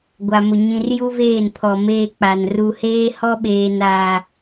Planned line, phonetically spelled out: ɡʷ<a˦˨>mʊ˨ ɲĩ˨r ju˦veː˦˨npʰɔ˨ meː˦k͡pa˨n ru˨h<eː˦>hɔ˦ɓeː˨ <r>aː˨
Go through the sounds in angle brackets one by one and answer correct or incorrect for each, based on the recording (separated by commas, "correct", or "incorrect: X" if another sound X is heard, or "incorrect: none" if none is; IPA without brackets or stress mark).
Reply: incorrect: a˨, correct, incorrect: n